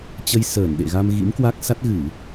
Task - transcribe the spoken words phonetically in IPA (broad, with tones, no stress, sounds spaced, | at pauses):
t͡ɕ ə˧ j s əː˧˩ n ɗ ḛ˧˨ ɣ a˧ m ɣ ḭ˧˥ m k w a˦˥ k̚ s a˦˥ t̚ ɣ ɨ˧˩˨